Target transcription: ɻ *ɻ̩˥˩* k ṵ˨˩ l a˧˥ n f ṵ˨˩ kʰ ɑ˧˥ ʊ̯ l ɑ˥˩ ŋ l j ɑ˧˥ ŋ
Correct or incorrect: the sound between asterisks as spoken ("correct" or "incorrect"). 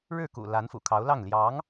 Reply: correct